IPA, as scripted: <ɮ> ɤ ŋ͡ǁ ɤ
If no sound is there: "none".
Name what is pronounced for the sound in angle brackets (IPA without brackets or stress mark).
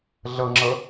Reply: ɮ